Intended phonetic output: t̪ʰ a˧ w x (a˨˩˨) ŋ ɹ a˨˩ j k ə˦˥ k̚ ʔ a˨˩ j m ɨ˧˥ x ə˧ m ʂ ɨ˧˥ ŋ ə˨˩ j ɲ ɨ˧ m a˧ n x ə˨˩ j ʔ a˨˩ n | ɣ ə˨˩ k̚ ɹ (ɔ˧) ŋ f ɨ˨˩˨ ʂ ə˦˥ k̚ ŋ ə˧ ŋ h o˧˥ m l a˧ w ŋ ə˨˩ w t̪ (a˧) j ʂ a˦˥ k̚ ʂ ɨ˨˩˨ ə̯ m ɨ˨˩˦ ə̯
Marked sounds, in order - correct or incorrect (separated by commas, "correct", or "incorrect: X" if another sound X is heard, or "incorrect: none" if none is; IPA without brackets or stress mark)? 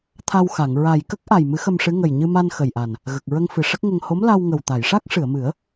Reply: correct, incorrect: ə˧, incorrect: a˨˩˨